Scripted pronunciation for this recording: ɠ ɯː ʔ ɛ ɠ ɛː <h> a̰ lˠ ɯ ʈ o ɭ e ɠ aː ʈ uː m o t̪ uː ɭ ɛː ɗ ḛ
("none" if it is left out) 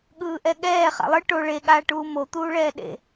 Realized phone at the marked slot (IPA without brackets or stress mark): χ